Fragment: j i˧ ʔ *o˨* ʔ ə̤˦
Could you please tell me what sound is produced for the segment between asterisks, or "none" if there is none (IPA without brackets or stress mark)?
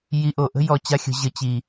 o˨